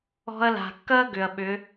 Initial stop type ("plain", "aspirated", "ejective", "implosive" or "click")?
plain